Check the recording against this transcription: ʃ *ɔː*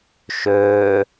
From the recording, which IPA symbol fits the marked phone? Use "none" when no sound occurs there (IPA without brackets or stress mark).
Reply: ɵː